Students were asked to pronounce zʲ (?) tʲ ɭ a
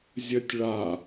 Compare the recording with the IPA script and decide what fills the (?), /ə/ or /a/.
ə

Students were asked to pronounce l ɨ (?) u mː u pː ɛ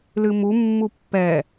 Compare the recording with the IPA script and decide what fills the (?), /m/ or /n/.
m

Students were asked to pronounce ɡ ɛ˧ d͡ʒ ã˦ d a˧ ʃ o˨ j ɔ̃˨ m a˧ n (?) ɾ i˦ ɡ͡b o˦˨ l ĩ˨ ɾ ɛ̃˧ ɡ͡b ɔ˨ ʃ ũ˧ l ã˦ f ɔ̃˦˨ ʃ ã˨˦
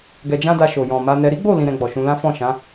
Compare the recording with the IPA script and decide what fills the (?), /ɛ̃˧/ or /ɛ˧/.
ɛ˧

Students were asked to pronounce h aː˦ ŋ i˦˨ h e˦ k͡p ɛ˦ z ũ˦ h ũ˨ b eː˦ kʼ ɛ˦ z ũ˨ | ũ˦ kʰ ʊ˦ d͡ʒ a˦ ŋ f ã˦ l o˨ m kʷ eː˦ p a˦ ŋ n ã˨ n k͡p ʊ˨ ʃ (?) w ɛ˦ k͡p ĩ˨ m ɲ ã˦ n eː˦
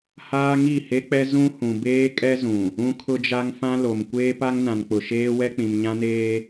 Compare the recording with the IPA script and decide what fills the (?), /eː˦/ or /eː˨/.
eː˦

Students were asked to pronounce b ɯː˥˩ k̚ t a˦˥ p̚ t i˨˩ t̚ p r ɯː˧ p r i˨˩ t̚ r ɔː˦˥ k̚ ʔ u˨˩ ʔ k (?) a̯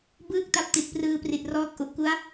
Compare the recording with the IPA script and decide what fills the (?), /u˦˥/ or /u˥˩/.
u˦˥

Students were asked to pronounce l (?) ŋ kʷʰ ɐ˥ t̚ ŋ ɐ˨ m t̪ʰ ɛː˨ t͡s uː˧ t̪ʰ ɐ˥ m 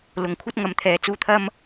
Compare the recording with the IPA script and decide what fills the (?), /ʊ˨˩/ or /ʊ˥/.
ʊ˨˩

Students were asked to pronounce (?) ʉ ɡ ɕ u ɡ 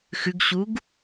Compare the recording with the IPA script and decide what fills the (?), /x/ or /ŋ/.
x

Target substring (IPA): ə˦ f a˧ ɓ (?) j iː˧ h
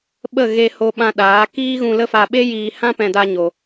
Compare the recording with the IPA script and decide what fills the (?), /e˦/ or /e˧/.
e˦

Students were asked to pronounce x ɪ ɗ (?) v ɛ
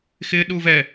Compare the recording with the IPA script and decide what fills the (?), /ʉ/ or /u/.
u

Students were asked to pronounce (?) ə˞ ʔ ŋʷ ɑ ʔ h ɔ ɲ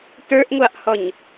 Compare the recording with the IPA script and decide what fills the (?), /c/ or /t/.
t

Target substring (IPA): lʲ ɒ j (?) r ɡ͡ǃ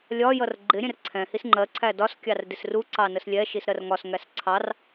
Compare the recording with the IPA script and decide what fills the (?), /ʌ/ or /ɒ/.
ʌ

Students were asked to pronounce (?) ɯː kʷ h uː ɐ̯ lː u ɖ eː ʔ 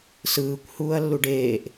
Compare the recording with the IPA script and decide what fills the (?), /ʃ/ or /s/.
s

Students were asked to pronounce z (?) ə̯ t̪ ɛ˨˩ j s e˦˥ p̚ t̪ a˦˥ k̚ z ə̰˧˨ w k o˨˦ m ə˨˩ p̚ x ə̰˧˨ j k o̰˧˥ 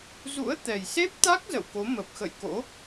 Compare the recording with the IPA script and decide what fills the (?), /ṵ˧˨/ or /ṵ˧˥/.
ṵ˧˥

